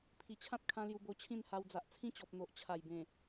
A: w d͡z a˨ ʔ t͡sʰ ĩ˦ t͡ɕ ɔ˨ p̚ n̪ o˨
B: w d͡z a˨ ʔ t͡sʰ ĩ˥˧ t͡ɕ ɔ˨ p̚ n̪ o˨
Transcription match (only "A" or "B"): A